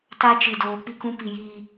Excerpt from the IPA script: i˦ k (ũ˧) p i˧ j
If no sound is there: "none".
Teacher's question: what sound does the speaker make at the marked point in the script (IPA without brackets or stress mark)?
ũ˦